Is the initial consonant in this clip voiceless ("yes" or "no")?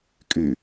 yes